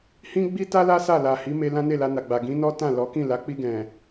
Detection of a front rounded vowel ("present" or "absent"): absent